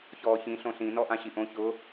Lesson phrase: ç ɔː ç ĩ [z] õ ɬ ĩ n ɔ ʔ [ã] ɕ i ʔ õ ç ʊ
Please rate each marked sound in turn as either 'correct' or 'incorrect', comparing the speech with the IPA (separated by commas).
incorrect, correct